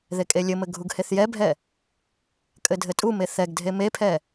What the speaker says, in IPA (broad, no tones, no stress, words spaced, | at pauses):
ðekʼelʲɘmɘ ɡʱuɡheθjɛbʱɛ | kʼɘdʱɘtʼume θɛɡdʱe mepʰɛ